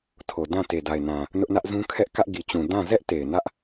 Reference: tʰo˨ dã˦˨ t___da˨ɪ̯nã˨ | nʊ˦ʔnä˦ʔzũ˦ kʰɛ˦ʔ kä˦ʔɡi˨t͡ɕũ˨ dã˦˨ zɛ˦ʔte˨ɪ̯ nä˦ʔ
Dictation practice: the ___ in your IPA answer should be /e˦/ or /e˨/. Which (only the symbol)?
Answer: e˨